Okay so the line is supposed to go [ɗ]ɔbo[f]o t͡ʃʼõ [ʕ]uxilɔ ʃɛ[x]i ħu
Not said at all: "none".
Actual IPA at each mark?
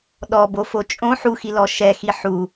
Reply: ɗ, f, ħ, x

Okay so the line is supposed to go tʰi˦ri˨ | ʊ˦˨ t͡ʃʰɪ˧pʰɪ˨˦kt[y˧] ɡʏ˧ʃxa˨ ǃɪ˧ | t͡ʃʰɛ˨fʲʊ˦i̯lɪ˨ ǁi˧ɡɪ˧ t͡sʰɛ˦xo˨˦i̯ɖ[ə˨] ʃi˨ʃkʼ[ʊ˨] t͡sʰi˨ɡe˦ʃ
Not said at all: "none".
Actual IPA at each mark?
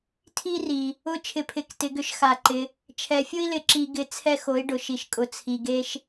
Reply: ɪ˧, ʊ˨, ʊ˨

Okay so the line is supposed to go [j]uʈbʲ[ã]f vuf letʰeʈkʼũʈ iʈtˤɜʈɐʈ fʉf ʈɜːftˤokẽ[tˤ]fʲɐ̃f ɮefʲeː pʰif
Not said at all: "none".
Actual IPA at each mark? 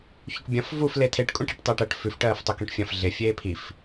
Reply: ç, ɐ̃, ʈ

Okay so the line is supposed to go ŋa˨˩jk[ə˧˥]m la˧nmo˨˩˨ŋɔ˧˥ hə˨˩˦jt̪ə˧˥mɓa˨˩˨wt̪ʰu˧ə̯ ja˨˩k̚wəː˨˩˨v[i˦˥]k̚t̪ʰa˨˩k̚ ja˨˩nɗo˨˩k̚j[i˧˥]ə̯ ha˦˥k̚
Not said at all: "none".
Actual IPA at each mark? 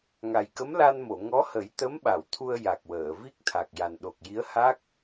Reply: ə˧˥, i˦˥, i˧˥

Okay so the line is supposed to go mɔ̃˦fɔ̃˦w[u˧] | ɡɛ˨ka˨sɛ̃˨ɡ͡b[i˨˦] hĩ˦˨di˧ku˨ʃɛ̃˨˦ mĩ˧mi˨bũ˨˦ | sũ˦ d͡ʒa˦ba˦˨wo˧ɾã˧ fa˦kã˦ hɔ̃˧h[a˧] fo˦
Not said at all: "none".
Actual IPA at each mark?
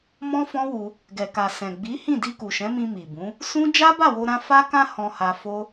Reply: u˧, i˨˦, a˧

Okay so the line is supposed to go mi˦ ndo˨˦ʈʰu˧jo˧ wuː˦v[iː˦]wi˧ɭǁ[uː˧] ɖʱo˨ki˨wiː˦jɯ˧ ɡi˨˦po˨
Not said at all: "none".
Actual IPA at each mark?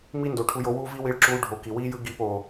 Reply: i˦, uː˧

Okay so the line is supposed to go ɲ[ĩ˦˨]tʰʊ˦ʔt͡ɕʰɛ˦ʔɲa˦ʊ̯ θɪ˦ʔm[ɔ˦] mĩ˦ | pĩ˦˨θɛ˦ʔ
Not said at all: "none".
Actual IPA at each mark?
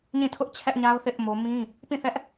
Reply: ĩ˦˨, o˦

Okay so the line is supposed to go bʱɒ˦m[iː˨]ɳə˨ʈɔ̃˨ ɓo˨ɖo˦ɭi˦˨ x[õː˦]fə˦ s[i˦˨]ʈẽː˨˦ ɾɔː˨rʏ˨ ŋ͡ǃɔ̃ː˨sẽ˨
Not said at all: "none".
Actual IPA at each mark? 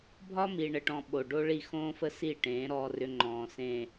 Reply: i˨, õː˦, i˦˨

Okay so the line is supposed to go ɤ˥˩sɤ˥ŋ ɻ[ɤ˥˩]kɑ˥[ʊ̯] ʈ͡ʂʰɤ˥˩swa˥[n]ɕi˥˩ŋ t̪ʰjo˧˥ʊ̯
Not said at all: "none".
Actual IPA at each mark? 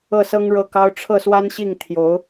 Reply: ɤ˥˩, ʊ̯, n

